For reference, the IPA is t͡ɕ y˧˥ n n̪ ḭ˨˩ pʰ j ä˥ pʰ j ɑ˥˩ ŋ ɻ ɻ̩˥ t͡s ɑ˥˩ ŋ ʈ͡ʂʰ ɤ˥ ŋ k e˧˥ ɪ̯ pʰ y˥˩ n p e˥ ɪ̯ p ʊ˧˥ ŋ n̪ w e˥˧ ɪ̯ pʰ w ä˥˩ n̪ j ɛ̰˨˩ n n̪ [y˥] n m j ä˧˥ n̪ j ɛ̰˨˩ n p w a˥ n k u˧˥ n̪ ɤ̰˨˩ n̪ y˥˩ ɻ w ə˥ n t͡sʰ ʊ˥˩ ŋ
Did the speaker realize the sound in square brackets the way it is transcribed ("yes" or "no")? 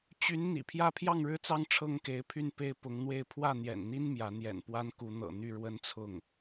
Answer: no